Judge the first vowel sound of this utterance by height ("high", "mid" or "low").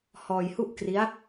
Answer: mid